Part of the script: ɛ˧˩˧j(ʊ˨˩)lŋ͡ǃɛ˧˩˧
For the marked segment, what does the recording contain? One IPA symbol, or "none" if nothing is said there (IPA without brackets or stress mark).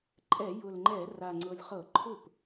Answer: ʊ˨˩